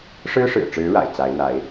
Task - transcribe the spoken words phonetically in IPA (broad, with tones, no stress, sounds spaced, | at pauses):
ʂ ɻ̩˥ ʂ ɻ̩˨˩ ʈ͡ʂ ɻ̩˧˥ ɻ a̰˨˩ ɪ̯ t͡s a˧˥ ɪ̯ n̪ a˧˥ ɪ̯